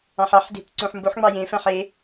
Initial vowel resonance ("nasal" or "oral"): nasal